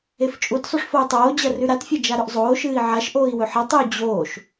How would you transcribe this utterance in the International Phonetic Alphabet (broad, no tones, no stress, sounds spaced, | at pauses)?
e f t͡ʃʼ u t sˤ u ʂ f o u̯ tˤ oː d͡ʑ ɐ r ʉ ɾ a t fʲ ɐ d͡ʒ a ɾ ɵ ʔ zˤ oː ʃ ɨː i̯ ʕ a ʃ ʔ oː i̯ w ɵ ħ ɐ tˤ e u̯ d͡ʑ oː ʃ